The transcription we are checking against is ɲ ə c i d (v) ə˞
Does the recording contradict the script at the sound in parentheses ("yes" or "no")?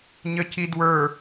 yes